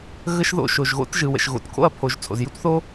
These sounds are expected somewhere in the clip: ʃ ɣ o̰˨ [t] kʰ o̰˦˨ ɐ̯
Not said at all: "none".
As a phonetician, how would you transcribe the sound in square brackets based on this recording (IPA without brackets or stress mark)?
t